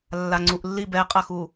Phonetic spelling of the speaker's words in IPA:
lː a ŋ͡ǀ u ʔ lː i b ɛ qʼ ɐ x u

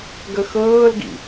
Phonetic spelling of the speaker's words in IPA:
ɡ ə x ɤː l ɡ ḭ

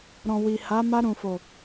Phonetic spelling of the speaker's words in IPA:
ɾ ɔ̃˨ w i˨ h a˨˦ m a˧ ɾ ũ˨ f o˨

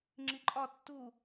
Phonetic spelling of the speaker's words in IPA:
ŋ͡ǁ i ǃʼ ɒ tː u

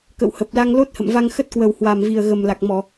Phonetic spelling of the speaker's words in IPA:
k ə̰˧˨ w h ə˨˩ p̚ l a˧ ŋ l o˦˥ t̚ h ə̰˧˨ m v a˧ ŋ x ə˦˥ t̚ k w ə˨˩ w h w a˨˩ m v i˨˩ ə̯ ɣ ə˨˩ m l a˨˩ k̚ m ɔ˧˩˨

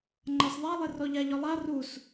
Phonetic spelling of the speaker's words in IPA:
ŋ͡ǃ a s ðˤ a lˠ ɪ r ɔ ʎ a ʎ ɔ lˠ a r u s

